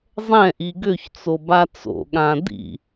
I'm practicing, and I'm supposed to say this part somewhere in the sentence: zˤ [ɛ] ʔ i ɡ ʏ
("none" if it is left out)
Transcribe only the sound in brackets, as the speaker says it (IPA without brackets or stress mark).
ɛ̃